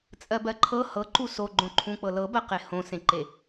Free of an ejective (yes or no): no